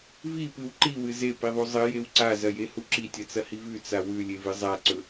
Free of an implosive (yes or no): yes